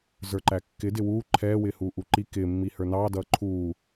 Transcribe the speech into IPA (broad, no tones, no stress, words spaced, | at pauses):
zə˞ǃækːɪdɪ wuː ǃʰɛːwɪːhuː ʔuǃi kɪːmːi hə˞nɑːdʌː ǃʰuː